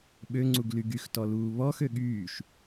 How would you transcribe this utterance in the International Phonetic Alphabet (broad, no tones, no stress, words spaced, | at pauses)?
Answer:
ɓøŋ͡ǀuɡly ɡyxtɔluː βɔxø ɠyːʃ